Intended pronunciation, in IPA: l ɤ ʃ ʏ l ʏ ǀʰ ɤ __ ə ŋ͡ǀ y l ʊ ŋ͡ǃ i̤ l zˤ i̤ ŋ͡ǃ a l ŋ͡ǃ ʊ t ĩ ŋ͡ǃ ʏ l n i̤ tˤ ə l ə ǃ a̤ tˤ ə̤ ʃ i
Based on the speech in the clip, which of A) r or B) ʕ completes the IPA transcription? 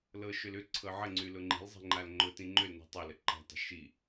B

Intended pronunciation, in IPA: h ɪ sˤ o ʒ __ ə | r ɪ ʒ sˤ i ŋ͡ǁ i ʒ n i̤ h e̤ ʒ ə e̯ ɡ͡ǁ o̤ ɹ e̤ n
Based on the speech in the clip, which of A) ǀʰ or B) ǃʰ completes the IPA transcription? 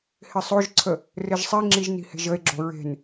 A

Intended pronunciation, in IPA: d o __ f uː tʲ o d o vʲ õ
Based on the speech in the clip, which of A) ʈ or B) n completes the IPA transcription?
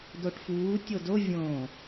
A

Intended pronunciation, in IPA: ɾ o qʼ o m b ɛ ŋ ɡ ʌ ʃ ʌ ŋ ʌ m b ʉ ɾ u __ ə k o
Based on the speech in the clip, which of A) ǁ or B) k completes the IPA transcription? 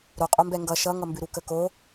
B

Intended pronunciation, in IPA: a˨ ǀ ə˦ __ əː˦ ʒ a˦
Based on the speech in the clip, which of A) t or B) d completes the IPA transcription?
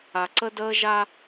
B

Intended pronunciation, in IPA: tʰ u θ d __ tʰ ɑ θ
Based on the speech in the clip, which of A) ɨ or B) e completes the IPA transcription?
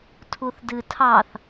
A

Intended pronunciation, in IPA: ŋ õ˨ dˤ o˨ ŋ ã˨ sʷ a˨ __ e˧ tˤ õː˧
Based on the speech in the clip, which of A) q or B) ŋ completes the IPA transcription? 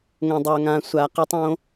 A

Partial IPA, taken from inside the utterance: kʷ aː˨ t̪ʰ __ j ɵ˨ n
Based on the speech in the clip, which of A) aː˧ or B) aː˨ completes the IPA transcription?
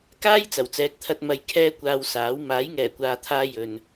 A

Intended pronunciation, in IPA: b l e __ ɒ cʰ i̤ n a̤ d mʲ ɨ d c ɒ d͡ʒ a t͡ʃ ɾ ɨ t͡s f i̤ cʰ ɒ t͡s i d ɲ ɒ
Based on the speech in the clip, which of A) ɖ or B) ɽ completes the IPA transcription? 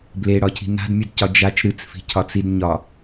B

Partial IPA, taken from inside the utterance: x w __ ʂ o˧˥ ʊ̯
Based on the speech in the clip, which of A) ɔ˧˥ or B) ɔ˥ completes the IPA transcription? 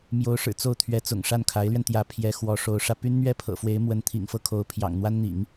A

